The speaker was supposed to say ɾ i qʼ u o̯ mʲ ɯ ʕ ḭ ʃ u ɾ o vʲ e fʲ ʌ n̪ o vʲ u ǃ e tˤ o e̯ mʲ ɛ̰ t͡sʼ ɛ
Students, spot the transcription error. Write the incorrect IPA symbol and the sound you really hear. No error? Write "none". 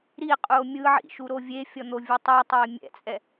ǃ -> tˤ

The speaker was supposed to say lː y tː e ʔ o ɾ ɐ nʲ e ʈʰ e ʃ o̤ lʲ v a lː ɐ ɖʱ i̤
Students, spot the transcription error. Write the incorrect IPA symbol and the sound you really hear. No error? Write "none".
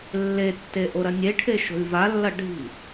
y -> e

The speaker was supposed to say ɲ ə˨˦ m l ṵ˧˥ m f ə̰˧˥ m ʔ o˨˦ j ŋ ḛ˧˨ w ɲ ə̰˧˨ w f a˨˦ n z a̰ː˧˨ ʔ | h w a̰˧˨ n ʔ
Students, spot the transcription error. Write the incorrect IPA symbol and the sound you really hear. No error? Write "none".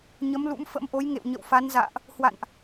none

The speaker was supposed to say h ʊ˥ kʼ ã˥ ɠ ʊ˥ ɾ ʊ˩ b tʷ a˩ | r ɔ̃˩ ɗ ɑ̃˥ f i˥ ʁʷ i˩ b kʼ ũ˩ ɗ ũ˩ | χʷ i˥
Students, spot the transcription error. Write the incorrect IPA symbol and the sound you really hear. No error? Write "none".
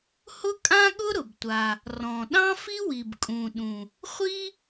ʁʷ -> w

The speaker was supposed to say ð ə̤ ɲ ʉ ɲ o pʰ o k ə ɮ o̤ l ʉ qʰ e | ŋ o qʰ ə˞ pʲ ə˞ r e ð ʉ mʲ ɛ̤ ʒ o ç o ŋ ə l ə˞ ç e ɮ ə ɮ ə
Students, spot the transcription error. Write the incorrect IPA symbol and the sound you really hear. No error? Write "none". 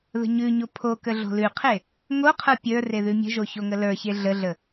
ɛ̤ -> ə̤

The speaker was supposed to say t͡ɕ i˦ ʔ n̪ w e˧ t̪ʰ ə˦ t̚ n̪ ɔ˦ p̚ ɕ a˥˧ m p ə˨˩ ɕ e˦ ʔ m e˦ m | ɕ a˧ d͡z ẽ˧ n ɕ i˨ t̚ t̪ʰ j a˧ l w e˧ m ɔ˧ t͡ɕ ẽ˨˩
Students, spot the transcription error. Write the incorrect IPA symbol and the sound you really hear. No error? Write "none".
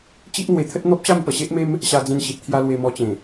none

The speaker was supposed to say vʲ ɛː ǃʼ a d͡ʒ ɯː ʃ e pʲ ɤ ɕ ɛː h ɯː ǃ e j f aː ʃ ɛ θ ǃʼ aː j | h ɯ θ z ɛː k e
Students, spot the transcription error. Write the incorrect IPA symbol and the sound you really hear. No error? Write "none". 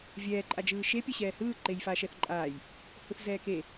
none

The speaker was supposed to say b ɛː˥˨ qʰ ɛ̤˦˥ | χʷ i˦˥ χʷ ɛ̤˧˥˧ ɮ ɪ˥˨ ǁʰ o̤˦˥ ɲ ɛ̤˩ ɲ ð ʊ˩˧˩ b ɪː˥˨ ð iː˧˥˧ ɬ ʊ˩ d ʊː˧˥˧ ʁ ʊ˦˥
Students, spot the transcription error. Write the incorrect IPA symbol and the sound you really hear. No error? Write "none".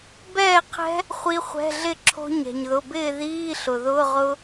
d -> ð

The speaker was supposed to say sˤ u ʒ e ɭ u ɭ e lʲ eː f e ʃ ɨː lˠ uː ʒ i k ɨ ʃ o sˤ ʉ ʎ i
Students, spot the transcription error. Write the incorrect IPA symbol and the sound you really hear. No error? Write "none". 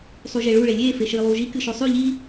none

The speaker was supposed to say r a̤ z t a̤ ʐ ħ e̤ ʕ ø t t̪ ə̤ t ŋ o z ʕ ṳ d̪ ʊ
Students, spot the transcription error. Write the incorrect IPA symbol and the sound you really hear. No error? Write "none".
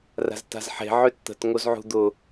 ʐ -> z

